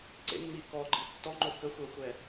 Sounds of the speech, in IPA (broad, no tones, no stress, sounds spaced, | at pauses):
ǀ ḛ mː i k ɔ ɡ͡ǃ i tː ɔ ŋ͡ǃ o k ə xʷ ɛ xʷ ɛ